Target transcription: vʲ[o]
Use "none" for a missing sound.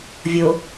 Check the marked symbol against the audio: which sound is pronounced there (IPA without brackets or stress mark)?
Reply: o